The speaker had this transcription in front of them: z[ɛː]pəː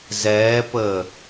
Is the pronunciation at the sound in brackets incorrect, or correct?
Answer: correct